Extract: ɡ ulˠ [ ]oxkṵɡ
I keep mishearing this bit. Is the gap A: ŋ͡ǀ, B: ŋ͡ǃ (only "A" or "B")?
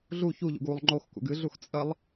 B